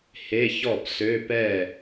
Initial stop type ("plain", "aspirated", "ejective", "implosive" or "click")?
plain